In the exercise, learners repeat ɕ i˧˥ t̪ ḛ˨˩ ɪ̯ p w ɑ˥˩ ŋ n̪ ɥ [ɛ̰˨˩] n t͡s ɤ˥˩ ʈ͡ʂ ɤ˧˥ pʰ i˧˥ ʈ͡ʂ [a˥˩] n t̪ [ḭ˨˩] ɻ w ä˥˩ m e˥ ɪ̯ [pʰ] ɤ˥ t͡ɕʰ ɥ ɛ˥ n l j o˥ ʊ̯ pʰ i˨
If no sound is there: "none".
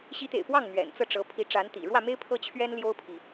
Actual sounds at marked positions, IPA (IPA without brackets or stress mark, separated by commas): ɛ̰˨˩, a˧˥, ḭ˨˩, pʰ